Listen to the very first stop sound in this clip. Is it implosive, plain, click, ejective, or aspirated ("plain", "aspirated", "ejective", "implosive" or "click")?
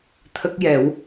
aspirated